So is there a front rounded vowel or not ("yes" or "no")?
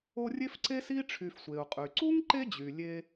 yes